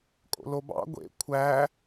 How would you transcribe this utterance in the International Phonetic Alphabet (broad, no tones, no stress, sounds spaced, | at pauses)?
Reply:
kʼ o̰ l o b ɑ̰ ɡʷ ḛ kʷʰ æ